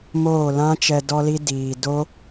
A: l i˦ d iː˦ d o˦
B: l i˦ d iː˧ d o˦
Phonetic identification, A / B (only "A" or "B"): B